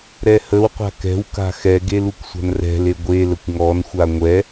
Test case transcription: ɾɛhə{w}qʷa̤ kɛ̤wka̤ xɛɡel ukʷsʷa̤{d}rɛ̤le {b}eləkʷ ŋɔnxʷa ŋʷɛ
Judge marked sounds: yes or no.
yes, no, no

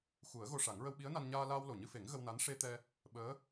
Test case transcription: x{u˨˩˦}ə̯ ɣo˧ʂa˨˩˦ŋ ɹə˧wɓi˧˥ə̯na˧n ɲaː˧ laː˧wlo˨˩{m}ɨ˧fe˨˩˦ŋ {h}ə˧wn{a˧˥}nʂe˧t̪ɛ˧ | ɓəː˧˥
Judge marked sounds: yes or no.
yes, no, no, yes

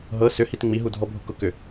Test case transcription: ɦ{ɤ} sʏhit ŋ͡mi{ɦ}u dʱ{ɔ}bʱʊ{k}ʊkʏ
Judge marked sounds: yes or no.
yes, yes, yes, yes

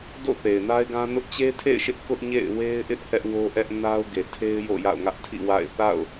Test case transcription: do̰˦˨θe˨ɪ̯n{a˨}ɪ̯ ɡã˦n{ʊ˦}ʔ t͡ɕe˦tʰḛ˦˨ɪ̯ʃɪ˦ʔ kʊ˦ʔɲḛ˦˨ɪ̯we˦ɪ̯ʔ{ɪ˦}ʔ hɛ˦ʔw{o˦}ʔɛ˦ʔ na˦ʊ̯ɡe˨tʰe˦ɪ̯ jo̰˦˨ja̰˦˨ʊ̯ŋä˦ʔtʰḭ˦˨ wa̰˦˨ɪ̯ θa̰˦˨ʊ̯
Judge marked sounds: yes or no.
no, yes, yes, yes

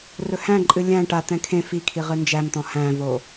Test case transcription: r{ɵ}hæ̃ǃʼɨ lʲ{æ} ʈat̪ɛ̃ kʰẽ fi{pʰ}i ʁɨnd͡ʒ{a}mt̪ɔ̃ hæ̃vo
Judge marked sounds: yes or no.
yes, no, no, no

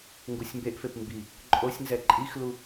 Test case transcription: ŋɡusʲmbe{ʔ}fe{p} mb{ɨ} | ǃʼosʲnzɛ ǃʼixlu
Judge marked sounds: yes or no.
yes, yes, no

